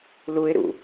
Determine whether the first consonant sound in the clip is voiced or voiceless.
voiced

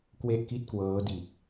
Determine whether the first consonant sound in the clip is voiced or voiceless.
voiceless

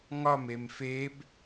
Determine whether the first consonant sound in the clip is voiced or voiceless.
voiced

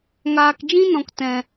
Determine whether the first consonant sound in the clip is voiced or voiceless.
voiced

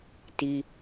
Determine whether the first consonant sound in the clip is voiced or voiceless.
voiceless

